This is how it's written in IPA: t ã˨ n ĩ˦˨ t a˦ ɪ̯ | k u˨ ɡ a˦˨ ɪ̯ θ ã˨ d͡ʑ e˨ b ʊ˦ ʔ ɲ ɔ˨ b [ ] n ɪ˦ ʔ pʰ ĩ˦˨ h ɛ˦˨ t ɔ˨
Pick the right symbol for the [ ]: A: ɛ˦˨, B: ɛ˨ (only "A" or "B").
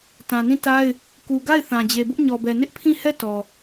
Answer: B